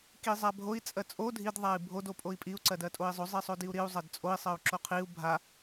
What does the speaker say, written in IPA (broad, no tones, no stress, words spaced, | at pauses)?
kizˤabʱoi̯ t͡sʼɜt͡sʼo dʱid ðˤai̯bʱod opʼoi̯pʼiu̯ ǀɜdɜtʼoi̯zˤo zˤisˤodiu̯ɾiu̯ zˤɜdt͡sʼoi̯ sˤɜu̯ǁoqʰiu̯ bʱa